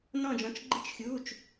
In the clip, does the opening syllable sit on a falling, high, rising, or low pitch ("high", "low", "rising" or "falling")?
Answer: falling